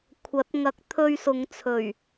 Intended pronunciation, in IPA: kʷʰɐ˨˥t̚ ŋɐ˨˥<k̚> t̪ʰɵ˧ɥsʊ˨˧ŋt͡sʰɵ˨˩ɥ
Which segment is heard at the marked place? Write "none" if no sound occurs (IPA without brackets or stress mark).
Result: k̚